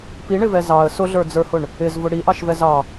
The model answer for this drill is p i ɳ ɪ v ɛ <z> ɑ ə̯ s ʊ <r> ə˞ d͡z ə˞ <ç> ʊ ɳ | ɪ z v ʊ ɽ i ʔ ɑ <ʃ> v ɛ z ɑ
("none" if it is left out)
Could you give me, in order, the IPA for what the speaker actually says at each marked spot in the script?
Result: z, ɮ, h, ʃ

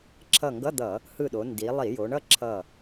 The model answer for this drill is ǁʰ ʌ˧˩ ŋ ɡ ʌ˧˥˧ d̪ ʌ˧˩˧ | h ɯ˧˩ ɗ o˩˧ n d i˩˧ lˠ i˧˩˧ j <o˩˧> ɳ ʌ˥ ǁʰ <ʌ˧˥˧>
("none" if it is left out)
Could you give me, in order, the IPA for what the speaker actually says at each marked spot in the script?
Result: o˩˧, ʌ˧˩

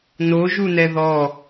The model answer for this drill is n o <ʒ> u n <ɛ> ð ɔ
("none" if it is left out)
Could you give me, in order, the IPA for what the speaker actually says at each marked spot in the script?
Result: ʒ, ɛ

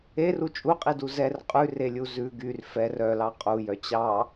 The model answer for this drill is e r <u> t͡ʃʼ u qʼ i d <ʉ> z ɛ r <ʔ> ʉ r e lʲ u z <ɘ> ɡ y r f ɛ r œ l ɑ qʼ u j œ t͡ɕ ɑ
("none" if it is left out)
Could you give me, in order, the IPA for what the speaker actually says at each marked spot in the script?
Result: u, u, qʼ, ʉ

